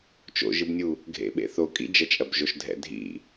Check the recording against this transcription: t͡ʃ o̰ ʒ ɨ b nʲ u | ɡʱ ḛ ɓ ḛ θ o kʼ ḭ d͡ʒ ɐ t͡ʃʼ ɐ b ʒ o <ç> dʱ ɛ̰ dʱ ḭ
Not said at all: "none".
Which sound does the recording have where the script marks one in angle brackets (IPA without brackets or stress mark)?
ʃ